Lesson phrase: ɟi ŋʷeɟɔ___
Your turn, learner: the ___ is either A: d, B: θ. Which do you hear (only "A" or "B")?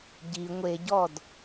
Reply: A